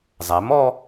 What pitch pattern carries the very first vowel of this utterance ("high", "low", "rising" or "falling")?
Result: rising